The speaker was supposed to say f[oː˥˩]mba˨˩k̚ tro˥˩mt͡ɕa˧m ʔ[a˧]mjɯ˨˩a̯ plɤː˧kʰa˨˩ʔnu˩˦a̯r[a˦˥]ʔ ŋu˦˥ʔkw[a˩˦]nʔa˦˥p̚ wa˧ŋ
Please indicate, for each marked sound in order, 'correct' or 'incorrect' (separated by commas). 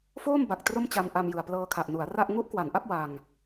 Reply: correct, correct, incorrect, correct